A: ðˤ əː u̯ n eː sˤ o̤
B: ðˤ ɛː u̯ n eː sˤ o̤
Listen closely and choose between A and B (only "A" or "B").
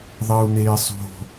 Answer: A